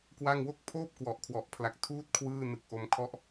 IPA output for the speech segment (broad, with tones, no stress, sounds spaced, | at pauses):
k w a˥˩ ŋ w o˥˩ k̚ pʰ oː˥˩ p̚ k w ɔ˨˩ ʔ kʰ w ɔ˨˩ ʔ pʰ l a˨˩ k̚ tʰ uː˥˩ t̚ kʰ w ɯː˥˩ n ɯ˨˩ k̚ ʔ o˧ m kʰ ɔ˦˥ ʔ